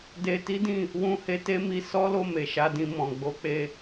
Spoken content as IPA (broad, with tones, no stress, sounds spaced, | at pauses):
d e˧ t i˦ d ĩ˦˨ | w ũ˧ h e˧ t e˦ m i˧ s ɔ˦ l o˦˨ m e˨ ʃ a˨˦ d ĩ˧ m ɔ̃˨ ɡ͡b o˨˦ k͡p e˧